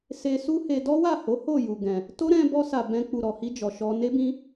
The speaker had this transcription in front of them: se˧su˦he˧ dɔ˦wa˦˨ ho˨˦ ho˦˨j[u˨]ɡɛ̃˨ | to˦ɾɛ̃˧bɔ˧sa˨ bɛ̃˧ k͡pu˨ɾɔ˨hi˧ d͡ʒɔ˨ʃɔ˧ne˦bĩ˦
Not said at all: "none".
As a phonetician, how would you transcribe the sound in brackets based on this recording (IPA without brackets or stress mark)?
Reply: u˨